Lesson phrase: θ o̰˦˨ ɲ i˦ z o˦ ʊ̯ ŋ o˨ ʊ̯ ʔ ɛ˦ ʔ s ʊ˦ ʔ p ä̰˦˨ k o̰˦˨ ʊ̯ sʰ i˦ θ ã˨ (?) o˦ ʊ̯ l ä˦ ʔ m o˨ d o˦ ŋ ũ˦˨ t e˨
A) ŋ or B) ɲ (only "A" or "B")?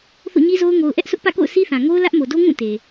A